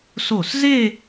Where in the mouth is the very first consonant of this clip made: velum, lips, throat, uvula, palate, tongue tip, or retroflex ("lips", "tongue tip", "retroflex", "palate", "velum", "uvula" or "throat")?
tongue tip